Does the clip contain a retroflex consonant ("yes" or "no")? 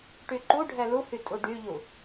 yes